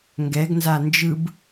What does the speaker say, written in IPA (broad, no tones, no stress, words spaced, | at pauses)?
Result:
ŋɡɛɡnza nd͡ʒɯb